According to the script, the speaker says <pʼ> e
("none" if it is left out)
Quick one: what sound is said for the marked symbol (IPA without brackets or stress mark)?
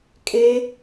kʼ